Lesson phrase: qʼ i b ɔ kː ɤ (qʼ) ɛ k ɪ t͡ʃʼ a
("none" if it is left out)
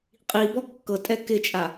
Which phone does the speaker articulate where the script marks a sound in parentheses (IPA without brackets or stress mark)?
tʼ